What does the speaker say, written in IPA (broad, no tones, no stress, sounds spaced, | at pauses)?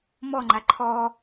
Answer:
m ɔ ŋ͡ǃ a ǃʰ ɔ